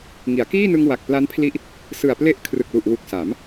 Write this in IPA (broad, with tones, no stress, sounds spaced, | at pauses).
ŋ i˩˦ a̯ k iː˥˩ n ɯ˧ ŋ w a˨˩ k̚ p l a˦˥ n pʰ l i˦˥ ʔ | s ɯ˨˩ a̯ p l e˥˩ ʔ kʰ r ɯ˨˩ k̚ l u˨˩ ʔ w u˨˩ k̚ s a˩˦ m